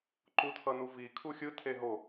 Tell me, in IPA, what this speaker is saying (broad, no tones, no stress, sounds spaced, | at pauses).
ǃ u tʰ ʌ n u v i kʰ u xʲ ɯ tʰ e ɦ o